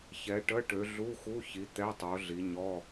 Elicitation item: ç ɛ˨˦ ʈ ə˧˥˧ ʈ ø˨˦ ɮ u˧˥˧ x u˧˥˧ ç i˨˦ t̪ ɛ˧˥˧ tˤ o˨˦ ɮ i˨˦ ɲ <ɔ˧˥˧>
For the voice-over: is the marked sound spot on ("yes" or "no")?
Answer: yes